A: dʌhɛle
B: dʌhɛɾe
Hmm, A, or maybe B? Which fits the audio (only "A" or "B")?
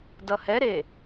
B